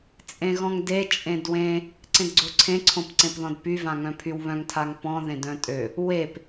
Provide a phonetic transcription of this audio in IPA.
t͡sʼẽɣɔ̃ŋde t͡ʃʼẽdwẽ | ǀẽdɡ͡ǀoǀʰẽ ǀʰõpǀẽpðɔ̃dpy vãŋœ̃pʰywβœ̃ŋ tʰaŋpɔ̃ ðẽdœ̃tʼø | wep

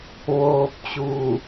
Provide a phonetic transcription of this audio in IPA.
ʋoː˧p̚t͡ɕuː˧˩

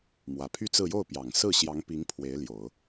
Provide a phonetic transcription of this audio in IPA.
mwä˨˩pʰy˥˧t͡sɹ̩˥˧ jo˥˩ʊ̯pjɑ˨˩ŋsɹ̩˥˩ ɕjɑ˧˥ŋpi˧˥ŋ pʰwe˧˥ɪ̯ljo˨˩˦ʊ̯

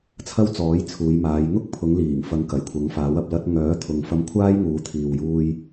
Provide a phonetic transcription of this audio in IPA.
t͡sʰɐ˥wt͡sɔː˨˥jt͡sʰuː˨˧jmaː˨˧j ŋʊ˥k̚pʰʊ˨˧ŋliː˨˩ŋfɐ˨˧ŋ kɐ˨˩jkʷʰɐ˨˥ŋfaː˨˥wɐ˧p̚ lɐ˧t̚ŋœː˨˥t̪ʰʊ˨ŋ fɐ˧mkʷʰaː˥jŋuː˨˧t̪ʰiː˨w juː˧j

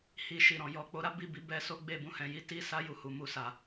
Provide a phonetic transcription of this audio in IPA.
hi˧ʃi˨ɾɔ̃˨ jɔ˨k͡po˨˦ɾa˦ bi˦˨bi˨˦bɛ˧ so˦ɡ͡be˦˨bũ˧hɛ̃˨ ji˨˦ ti˦sa˦ ju˧hu˨mu˧sa˨

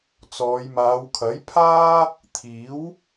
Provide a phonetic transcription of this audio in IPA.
t͡sɔː˨˧jmaː˨˧wkʰɐ˨˥jpʰaː˥ | t̪ʰiː˨˥w

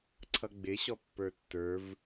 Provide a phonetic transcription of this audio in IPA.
ǀʰʌɡ͡bɪɕɔ pːə˞tːə˞v

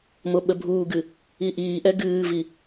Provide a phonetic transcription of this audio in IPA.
moɓəbʱuːɡɨ | iʔiːʔɛ ɡɨːvi

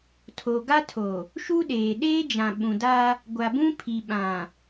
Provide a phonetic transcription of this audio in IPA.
tʰo˨ ɡa˦tʰo˨ | ʃu˦ɗeː˨ ɗeː˦d͡ʒã˨ ɓũ˨da˦ | ɡʷa˨bũ˦pʰi˨ ɓã˨

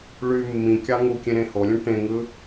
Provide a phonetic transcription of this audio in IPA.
ɭy mːĩkʲɑ ŋukʲẽ ɾẽholʲũ ʈẽŋɯ

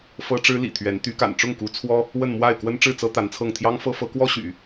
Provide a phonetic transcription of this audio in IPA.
fɤ˥ʈ͡ʂɻ̩˥lḭ˨˩t̪ʰɥɛ˧˥n t̪y˧˥ka̰˨˩nʈ͡ʂʊ˥˩ŋku˧˥ t͡sʰwɔ˥ | wə˥˧nmwa˥˩ɪ̯ kwə˥nʈ͡ʂɻ̩˥˩t͡sɤ˥ t̪a˧˥nt͡sʰɤ˥˩ŋ t̪ʰjɑ˥ŋfɤ˥ fɤ˧˥kwɔ˥ɕy̰˨˩˦

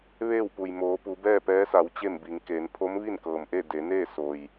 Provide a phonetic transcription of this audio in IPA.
ʋeː˥˨wpu˩jmoː˩˧pu˩˧ bɛː˥˨pɛː˧˥sa˩˧w t͡ɕe˥˨mbi˩˧ŋkeː˩˧n pʰo˧˥mʋi˥˨nkɤː˩mʔe˥˨ de˩˧ neː˥˨ so˩j

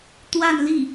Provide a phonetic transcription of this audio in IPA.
t̪wa˥˧nli˥˩

